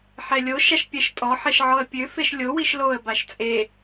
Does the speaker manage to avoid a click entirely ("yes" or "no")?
yes